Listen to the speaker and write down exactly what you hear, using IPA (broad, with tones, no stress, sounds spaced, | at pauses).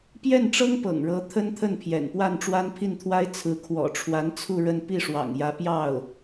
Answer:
p j ɛ˥˩ n ʈ͡ʂ ɤ˥ ŋ p ɤ̰˨˩ ŋ ɻ ɤ˧˥ t̪ʰ ə˥ n t̪ʰ ə˥˩ n pʰ j ɛ̰˨˩ n p w a˥˩ n ʈ͡ʂ w a˥ n pʰ i˥˩ n t̪ʰ w a˥ ɪ̯ t͡sʰ ɹ̩˧˥ kʰ w ɔ̰˨˩ ʈ͡ʂʰ w a˧˥ n t͡sʰ u˥˧ ɻ ə˥˧ n p i˥˩ ʂ w ɑ̰˨˩ ŋ j ä˧˥ p j ɑ˥˩ ʊ̯